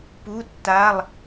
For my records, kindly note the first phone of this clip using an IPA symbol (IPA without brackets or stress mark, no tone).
p